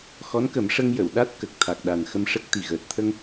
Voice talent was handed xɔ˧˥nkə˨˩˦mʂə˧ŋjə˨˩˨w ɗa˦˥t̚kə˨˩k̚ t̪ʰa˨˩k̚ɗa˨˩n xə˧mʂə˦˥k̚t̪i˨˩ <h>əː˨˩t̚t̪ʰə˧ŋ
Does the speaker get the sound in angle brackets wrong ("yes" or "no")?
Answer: yes